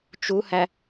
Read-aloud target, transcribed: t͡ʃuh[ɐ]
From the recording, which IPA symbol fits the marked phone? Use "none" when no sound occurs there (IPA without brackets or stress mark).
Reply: æ